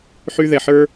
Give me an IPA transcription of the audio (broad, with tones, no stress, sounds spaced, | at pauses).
ħ y˧ ð ɛ˨ ħ ə˞˦